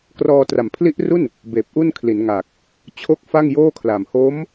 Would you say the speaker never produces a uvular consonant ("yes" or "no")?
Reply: yes